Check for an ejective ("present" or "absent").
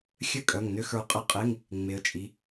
present